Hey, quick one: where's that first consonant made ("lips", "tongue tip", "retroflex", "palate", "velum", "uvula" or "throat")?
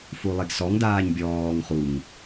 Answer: lips